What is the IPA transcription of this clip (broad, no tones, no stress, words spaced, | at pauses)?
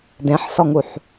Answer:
dẽħsɔŋuħ